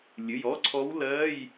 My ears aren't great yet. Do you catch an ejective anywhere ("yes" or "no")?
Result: no